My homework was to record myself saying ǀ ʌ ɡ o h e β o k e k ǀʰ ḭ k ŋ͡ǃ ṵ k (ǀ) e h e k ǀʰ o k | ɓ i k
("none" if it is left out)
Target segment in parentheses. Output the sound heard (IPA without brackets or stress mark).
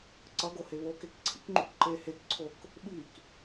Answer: ǃ